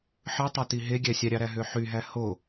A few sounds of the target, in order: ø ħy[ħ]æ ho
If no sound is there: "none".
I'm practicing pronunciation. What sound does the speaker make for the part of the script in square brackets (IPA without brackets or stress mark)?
ɦ